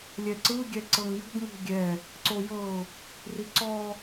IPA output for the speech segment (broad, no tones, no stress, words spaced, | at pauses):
lʲɛǀɯ ɡʲɛǀɤŋjṳɡ ŋṳɡʲɛ | ǀojɤʊ̯ | riǀɔ